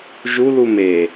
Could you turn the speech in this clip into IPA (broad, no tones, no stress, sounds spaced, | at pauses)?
ʒ u l u m e